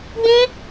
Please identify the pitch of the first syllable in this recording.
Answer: high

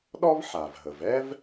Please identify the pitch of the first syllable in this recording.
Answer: high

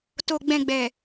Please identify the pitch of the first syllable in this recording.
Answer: low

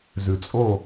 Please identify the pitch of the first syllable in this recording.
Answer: low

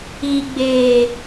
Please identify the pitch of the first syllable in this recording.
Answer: low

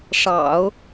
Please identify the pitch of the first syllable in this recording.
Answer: low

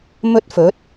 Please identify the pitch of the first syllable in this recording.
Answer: high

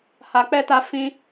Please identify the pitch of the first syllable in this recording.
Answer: low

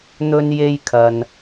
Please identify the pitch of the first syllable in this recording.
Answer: high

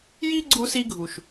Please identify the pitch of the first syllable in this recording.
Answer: high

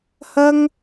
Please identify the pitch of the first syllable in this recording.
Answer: high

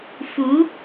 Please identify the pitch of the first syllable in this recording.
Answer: rising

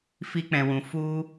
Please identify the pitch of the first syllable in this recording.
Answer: high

